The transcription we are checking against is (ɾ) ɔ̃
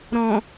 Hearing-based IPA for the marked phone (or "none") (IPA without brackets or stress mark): ɾ